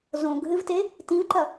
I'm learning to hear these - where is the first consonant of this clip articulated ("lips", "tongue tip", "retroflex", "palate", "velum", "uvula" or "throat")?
tongue tip